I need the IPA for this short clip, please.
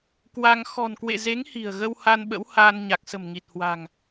kwa˧ŋ xɔ̤˨˩nkwḛ˧˨ ze˨˦ŋ hi̤˨˩ə̯ ɣə˧wha˧n ɓə̰˧˥whaː˧nɲa˨˩k̚ sə̤˨˩mŋi˨˩t̚ hwa̤˨˩ŋ

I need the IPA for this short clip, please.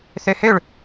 θøhøɭ

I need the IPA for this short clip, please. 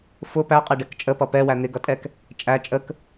fʊ pæqʼɛɖɛk t͡ʃʼəpʌ pɛwæ n̪ɪɡʌtʼɛk | t͡ʃʼæ t͡ʃʼək

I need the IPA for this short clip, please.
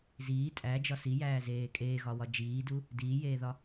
ziː tʼæd͡ʒɒ sijæːzeː kʼeːɣɒwɒ d͡ʒiːdu | diːjeːðɒ

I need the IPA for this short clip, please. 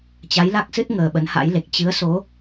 t͡ɕa˨˦jla˦˥k̚sɨ˦˥t̚ ŋəː˨˩ɓə˨˦nha̰˧˥jle˨˩k̚ t͡ɕɨ˨˦ə̯so˨˦

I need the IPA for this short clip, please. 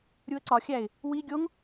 ɾʲuə̯ǀɒxʲæɪ̯ | wi ɡʲoŋ

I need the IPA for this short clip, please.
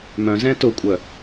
mœ̃ zɛ̃tʊkʷʼœ

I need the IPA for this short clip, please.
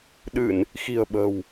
ɗɨ˧˩˨n | xi̤˨˩ə̯ɓə̤˨˩w

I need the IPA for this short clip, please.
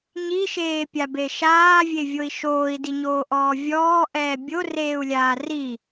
ɲiʃeːpʲabe ʃaːvʲevʲoi̯ ʃoːi̯diɲoːʔɔː vʲɔːʔɛː bʲoreːu̯lʲaː ri

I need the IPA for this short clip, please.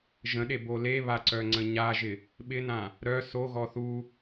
ʒə̃ɗebo leβaǀœŋ͡ǀə̃ ɲaʒɪ | ɓɪnã | ɾœ soɣɔ θu

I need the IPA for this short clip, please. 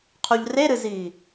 qʰuʎreɾɨziː

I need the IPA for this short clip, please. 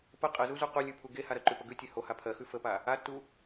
pə qʼəzuzu qulʲʉ pʰuɡehaɾɜ ǃʉpəɡʉ tʲehoha pʰɜxʉ fəpa | atːu

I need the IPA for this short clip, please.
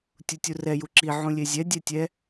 tʲutʲurɛ juǁi ʕũlʲezʲɛ dʲɛtʲɛ

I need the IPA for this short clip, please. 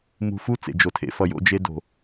mṳ˧ fu˦ t͡sḛ˨d͡ʒo˨tʰḛ˧ fʌ˨jo̰˧d͡ʒe˧ do̤˨

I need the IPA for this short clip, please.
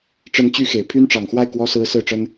ʈ͡ʂə˧˥nt͡ɕy˧˥ xe˨˩ɪ̯ pʰy˥nʈ͡ʂɑ˨˩ŋxwa˥˩ɪ̯ kwɔ˥sɹ̩˥ sɹ̩˥˩ʈ͡ʂə˥n

